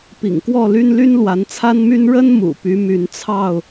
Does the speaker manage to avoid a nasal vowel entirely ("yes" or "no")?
yes